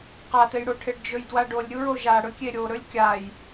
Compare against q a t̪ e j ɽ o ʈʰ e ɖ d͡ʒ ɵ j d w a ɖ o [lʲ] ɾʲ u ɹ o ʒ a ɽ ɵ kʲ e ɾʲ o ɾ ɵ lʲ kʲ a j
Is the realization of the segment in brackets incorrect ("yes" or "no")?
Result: no